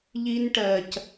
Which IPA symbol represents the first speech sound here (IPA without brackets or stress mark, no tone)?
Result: ʎ